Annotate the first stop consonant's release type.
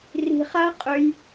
ejective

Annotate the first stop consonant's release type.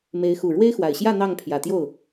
aspirated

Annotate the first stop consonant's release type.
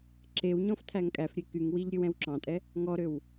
click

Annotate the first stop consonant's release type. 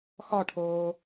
aspirated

